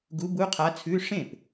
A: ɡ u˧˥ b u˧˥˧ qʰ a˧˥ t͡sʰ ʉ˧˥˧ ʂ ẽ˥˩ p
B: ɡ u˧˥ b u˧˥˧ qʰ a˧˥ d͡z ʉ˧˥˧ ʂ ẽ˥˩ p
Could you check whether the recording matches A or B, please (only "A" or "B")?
A